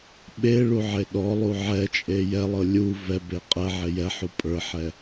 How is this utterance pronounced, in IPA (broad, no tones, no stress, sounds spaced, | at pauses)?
ɓ e ɭ u ʕ e ɗ ɔ lˠ u ʕ ɛ t͡ʃʼ e j ɛ lˠ ɤ lʲ u v ɛ b e qʼ ɛ ʕ e j ɛ ħ u pʼ ə˞ ħ ɛ